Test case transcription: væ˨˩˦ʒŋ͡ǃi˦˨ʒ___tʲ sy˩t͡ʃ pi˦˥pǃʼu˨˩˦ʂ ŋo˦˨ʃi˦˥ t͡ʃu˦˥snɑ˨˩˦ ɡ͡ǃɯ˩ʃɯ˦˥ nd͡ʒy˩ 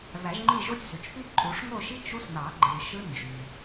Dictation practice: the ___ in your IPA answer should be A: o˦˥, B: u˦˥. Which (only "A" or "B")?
A